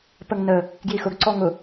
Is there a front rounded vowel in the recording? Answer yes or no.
no